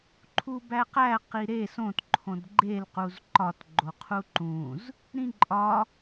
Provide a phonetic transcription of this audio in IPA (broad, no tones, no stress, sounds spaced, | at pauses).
ǃʰ u b æ q æ q i ɾ e s õ t ǃʰ õ d ɡ͡ǃ e l q u z ǃ ɒ t ɡ͡ǃ o qʰ u ǃ ũ z | ɾ ĩ ǃʼ ɒ